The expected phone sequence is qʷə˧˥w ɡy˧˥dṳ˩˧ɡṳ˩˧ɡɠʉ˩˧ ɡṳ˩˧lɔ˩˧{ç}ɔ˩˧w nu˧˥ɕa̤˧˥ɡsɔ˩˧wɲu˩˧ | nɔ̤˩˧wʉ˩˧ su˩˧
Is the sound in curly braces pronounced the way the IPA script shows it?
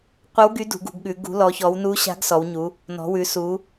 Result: yes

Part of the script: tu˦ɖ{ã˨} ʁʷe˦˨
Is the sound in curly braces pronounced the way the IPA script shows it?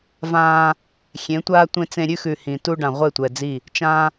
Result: yes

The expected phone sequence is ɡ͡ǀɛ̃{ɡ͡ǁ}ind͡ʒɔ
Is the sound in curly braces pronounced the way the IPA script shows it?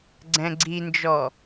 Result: no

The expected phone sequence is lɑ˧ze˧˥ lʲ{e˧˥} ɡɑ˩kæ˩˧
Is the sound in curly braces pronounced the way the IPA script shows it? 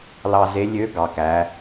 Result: no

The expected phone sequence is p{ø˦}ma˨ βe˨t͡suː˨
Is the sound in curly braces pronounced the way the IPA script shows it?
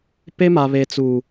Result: no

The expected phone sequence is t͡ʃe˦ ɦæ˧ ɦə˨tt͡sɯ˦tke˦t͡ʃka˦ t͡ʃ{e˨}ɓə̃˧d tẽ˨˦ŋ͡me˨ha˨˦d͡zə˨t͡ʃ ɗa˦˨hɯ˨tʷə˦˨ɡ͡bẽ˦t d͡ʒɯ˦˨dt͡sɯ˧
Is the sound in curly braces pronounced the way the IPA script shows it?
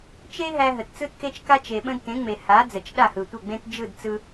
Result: yes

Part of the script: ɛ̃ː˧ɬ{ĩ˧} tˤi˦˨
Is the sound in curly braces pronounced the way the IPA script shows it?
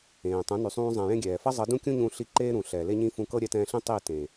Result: no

